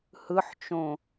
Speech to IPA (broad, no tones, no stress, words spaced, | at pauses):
hɯħt͡ʃõ